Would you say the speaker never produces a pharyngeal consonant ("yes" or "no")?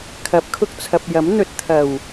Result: yes